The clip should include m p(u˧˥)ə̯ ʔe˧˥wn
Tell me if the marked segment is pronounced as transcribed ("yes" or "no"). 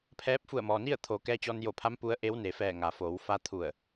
yes